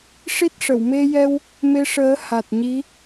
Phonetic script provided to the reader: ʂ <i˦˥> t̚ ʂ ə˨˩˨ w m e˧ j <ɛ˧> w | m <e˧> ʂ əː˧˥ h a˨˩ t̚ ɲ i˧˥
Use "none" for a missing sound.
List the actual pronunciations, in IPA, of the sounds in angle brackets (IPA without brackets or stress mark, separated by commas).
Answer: i˦˥, ɛ˧, e˧